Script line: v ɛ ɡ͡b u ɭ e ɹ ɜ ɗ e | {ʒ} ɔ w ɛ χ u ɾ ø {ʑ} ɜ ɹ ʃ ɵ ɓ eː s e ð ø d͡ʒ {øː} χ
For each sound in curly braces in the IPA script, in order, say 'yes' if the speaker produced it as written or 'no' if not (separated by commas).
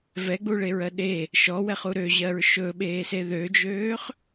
no, yes, yes